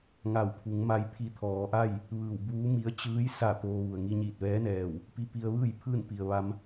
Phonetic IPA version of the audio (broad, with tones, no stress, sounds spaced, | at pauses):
ŋ a˧˩ w pʰ u˩˧ ŋ m a˧ j pʰ i˧ t̪ʰ ɔː˩˧ ʔ a˥˨ j | ʋ ɯː˧˩ w b uː˧˥ m i˧˥ ə̯ t͡ɕ ɯː˧˥ j s a˧˩ t̪ oː˧ ʋ u˩ ə̯ ŋ i˧ ɲ iː˧˩ t̚ ʋ ɛː˧˥ n ɛː˧˩ w | p i˧ p i˧ ə̯ ʋ ɯː˥˨ j pʰ ɯː˥˨ n p i˩ ə̯ ʋ a˧ m